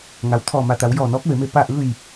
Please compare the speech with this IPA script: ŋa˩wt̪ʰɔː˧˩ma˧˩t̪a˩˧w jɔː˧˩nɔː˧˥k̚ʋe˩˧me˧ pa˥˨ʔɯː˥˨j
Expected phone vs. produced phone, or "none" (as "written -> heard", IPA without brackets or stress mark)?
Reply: none